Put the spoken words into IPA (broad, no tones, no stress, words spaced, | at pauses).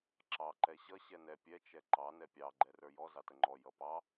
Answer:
ǁɑ ǃɛɕʌ ɕɛnɛ pʲɛ t͡ʃɛǃɑ nɛpʲɑ ɡ͡ǃɛrə˞jɔ zɑtəŋ͡ǃɔ jʌpɑ